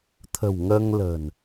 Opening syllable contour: low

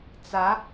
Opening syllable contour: rising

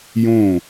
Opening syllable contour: falling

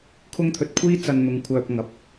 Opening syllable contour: high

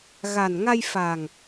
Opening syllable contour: low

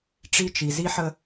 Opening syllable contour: high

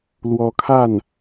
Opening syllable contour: rising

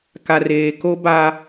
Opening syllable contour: low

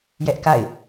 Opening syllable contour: high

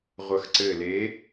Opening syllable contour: low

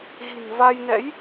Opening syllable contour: low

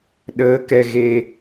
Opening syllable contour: rising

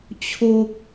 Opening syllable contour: high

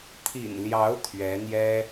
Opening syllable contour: low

